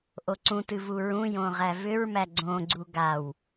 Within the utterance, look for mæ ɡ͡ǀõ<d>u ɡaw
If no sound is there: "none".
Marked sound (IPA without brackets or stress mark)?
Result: ɡ͡ǀ